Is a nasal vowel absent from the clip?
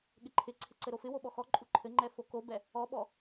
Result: yes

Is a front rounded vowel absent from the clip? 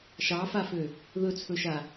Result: no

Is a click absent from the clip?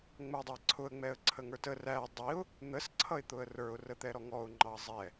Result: no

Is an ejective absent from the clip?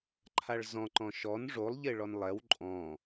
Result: no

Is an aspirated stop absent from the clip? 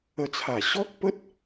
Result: no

